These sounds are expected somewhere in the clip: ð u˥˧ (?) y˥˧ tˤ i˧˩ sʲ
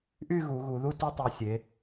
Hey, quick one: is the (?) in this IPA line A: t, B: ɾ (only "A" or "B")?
A